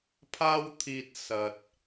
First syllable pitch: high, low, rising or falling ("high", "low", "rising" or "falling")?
high